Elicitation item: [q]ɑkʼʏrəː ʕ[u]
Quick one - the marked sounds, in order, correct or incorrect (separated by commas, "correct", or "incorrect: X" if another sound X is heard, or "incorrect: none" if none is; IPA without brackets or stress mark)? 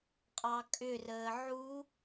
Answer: incorrect: qʼ, correct